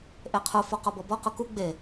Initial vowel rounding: unrounded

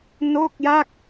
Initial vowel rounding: rounded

